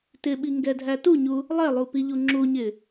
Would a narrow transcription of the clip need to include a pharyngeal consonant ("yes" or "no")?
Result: no